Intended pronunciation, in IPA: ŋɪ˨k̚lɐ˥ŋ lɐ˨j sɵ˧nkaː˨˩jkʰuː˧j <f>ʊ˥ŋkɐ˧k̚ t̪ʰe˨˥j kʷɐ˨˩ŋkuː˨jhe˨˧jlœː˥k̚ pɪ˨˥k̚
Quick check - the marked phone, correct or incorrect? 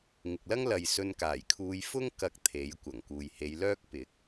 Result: correct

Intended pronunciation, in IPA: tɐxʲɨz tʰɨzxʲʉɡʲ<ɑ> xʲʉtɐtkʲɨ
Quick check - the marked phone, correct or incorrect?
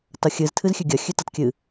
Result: incorrect: ɐ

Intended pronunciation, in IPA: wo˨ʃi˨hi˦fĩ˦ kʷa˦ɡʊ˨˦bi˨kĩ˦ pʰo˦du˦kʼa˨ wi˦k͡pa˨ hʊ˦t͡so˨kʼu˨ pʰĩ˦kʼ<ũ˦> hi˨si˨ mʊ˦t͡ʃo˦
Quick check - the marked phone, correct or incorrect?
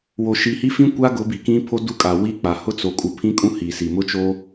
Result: correct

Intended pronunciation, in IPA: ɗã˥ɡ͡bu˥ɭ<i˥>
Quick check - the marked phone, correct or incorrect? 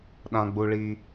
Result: correct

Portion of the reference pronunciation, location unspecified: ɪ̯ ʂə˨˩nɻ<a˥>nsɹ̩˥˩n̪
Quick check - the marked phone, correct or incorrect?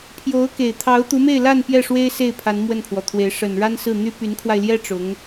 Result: correct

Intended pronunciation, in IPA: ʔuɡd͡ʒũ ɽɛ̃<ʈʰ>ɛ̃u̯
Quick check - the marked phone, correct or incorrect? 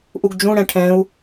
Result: correct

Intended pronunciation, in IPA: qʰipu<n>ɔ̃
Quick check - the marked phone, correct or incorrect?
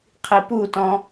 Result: incorrect: t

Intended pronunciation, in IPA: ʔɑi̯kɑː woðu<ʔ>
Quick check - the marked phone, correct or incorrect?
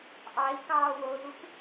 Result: incorrect: k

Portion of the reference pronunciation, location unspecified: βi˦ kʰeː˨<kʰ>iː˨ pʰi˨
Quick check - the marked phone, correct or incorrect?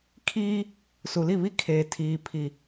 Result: incorrect: tʰ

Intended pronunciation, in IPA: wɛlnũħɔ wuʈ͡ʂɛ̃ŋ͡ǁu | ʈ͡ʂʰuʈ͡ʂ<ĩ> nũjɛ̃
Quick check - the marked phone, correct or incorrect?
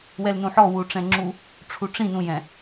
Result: correct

